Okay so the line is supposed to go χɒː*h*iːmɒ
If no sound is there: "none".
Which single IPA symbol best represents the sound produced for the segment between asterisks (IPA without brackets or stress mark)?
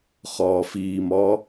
f